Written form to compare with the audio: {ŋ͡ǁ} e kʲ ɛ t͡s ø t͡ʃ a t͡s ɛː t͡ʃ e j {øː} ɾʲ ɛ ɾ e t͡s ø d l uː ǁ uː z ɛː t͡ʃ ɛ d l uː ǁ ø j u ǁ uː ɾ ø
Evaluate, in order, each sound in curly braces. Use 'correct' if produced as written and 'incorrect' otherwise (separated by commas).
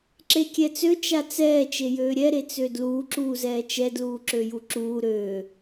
incorrect, correct